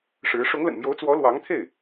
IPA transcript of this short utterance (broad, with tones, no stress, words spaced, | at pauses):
ʂɻ̩˧˥ ʂʊ˧˥ŋlə̰˨˩nmjo˧˥ʊ̯ t͡swɔ˧˥ lwɑ˧˥ŋt̪ʰe˥˩ɪ̯